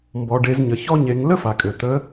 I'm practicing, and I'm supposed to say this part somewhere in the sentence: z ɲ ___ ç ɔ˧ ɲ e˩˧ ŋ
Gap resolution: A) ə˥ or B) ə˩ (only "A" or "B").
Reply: B